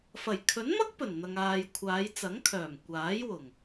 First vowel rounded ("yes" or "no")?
no